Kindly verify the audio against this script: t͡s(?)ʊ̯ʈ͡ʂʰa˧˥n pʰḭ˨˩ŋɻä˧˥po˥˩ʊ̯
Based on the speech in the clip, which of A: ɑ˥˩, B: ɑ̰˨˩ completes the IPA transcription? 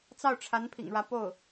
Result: A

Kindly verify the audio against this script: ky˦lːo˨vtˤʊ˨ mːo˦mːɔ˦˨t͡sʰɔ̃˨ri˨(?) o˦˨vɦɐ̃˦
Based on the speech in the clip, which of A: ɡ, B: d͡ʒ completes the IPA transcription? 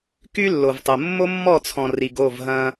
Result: A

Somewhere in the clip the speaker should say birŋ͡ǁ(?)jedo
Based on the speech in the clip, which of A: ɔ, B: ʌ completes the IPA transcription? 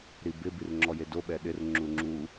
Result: A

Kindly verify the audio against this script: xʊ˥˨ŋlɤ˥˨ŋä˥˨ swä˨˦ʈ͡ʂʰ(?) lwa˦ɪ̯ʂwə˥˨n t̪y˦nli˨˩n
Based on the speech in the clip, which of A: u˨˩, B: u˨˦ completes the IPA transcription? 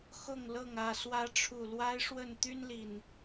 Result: A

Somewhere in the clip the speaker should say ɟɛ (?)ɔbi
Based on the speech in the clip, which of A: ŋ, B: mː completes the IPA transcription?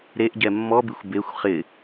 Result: B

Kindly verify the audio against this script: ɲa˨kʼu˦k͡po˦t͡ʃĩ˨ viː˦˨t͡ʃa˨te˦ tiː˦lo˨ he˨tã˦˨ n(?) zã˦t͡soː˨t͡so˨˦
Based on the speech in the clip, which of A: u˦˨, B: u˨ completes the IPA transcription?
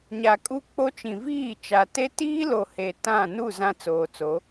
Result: A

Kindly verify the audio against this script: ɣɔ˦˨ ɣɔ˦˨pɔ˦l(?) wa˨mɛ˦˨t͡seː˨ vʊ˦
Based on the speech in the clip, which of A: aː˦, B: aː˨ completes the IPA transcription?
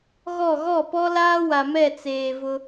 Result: A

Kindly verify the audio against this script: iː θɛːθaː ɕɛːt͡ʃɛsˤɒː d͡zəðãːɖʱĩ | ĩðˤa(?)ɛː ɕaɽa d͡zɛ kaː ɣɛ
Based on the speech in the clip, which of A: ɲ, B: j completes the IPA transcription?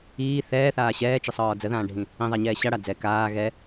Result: A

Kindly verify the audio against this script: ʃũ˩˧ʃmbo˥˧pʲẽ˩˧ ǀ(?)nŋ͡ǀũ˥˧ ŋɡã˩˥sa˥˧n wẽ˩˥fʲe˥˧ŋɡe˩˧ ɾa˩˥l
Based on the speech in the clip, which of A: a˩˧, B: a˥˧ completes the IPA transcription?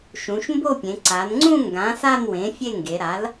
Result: A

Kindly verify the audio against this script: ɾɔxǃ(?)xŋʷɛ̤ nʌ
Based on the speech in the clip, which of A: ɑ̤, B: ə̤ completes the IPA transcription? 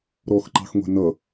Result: A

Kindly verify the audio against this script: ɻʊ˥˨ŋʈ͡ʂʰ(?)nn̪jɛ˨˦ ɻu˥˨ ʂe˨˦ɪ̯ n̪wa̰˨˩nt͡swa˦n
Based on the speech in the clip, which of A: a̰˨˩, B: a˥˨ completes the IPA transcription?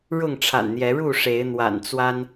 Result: A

